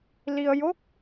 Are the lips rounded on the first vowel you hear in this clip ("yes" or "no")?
no